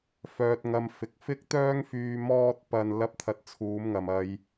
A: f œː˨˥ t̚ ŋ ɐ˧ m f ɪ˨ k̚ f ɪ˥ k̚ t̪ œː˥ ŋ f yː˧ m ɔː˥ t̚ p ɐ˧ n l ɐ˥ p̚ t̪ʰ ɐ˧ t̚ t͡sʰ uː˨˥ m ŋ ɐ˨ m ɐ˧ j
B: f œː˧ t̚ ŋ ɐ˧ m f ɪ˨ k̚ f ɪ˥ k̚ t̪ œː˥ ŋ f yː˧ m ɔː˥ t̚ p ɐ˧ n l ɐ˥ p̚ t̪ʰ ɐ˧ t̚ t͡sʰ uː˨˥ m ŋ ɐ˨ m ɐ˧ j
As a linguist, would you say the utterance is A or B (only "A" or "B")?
B